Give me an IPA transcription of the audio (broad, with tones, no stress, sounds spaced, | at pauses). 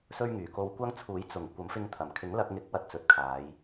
s ɵ˥ ɥ ŋ yː˨˩ k o˧ w kʷ ɐ˥ ŋ t͡sʰ uː˨˥ j t͡s ʊ˨˩ ŋ kʷ ɐ˨˥ m f ɪ˧ ŋ t̪ʰ ɐ˨˩ m kʰ ɪ˨˥ ŋ l ɐ˧ k̚ ŋ ɪ˨˥ k̚ w ɐ˧ t̚ t͡s ɵ˨ t̚ kʰ aː˨˧ j